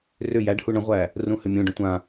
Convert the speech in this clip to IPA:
rʏ jæɖhu ɳə̃ʁʷæ | rũhʏmʲũɖə̃ tʷã

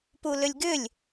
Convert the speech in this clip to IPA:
pulʏlʲɡʏlʲ

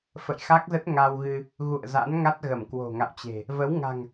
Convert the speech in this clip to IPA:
fə̰˧˨jxa˦˥k̚zə˦˥t̚ ŋa˧wɣɨ˧ | ɣṵ˧˨ə̯za̰˧˥nŋa˦˥t̚ɣə˧˩m kwo̤˨˩ŋa̰˧˨wt͡ɕe̤˨˩ | və˨˦wŋa̤˨˩ŋ

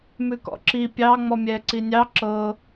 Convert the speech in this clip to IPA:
mʉkɔ̰ǁi pʲɑ ŋ͡mɔmʲɛ ǀinʲɑ ǁɤ

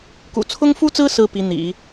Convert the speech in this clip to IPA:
kṵ˨˩t͡sʰʊ˥ŋfu˥t͡sɹ̩˥ sɹ̩˥pi˧˥n̪ḭ˨˩˦

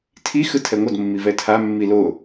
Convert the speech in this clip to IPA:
tʰi xɯtʰɛŋʷʌd mːivɛtʰa mːilo

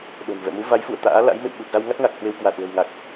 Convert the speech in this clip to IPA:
ɗo̤˨˩n vɛ̰˧˨mu˨˦va˨˦jfṵ˧˨ə̯ t̪a̰ː˧˥la̰˧˥j mḛ˧˨wɓu˨˩t̚za˧wŋa˦˥t̚ ŋa˨˩k̚hwe˧w kwa˨˩t̚ lə̤˨˩wŋa˨˩k̚

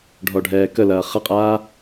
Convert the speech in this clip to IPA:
ɖʱɔɖʱɛːkəlɐː χɐqʼaː

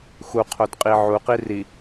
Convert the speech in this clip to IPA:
xuqʰodqʼi ʕuqi ri

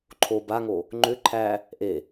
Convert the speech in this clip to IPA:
ǃʰo baŋo | ŋ͡ǃʏ ǃʰæ | ʔe

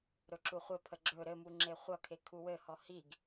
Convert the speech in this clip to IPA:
ɾɵǁuχʷɘpʰə ɡ͡ǁɵ ɾɘmu ŋ͡ǁeχʷʌkʰe kʰuwɘhɔ hiɡ

